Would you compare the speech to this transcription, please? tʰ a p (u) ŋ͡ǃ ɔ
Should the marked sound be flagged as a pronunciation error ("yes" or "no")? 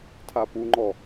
no